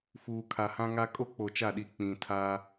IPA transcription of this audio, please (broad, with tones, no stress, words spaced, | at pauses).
fuː˨kʰa˨hã˦ŋa˦ kʼo˦k͡po˨t͡ʃa˦˨ɗi˨ k͡pĩ˨tʰa˦